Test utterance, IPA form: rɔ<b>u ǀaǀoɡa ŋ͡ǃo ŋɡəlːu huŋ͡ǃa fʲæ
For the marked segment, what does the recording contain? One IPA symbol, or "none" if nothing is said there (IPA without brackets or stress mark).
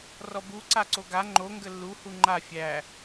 b